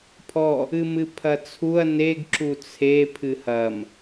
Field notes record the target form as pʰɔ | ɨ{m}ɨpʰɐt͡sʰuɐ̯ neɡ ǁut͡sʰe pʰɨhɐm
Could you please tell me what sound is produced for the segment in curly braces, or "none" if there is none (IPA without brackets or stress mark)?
m